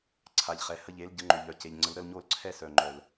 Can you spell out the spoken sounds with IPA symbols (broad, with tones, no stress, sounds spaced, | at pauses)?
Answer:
ǀʰ a˨ ʎ χ ɛ˨ h ə˧ ʎ e˨˦ l ɟ ə˨˦ ŋ͡ǃ ø˨ ʎ œ˨ c e˨ ʎ ŋ͡ǀ ə˨˦ l ɾ ə˧ l ɲ o˧ l ǀʰ ɛ˧ s œ˨ ŋ͡ǃ œ˨ l